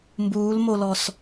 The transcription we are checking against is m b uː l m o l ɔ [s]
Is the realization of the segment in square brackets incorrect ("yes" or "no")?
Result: no